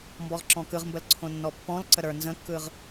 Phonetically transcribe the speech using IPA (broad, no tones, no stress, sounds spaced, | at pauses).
m b ɔ ʁ ǁ ɔ̃ k ɯ ʁ m b ə l ǀʰ õ nː ɔ pː ɔ̃ l ǀ ə ɾ ə˞ n z ə̃ kː ɯ ʁ